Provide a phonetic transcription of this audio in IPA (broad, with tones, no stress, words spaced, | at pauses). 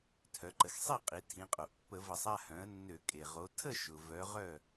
tʰœ˩˧ǃə˩˧xsˤi˥˨qʼi˩˧ tʰĩ˩˧qʼo˩ʔpːə˧˩˧ və˧˩˧sˤa˥˨hœ̃˩˥ə̯nːø˧˩˧ kʼe˩ʁo˩˥ tʰə˥˨ʃʊ˩ vœ˩˧ ʁœ˥˨